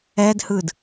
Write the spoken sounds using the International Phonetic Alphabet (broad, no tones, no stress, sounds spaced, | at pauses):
ɛ d h ɯ d